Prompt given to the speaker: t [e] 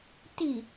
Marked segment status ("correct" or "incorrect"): incorrect